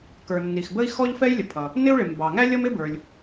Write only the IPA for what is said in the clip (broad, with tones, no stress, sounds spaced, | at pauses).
k ə˞˩ nː i˩ x b ə˥ i̯ x ɔ˥ ʎ f ɛ˥ j lʲ ə˩ pʰ ʌ˩ | n ɪ˥ u̯ ɭ ɪ˩ m b ɑ˩ ŋ æ˥ lʲ ʌ˥ m ɪ˥ b ə˞˩ lʲ